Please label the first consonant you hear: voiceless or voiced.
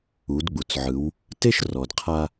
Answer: voiced